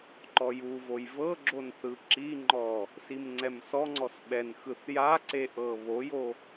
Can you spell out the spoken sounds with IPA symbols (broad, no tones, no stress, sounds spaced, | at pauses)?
ǃ ɔ j u v o j v ɤ ɡ͡ǁ o n θ ɯ ǁ i ŋ͡ǃ ɔ | s i m ŋ͡ǀ ɛ m s ɔ ŋ͡ǀ ɔ s ɓ ɛ n x ɯ θ j a ǀ e ʔ ɤ β o j o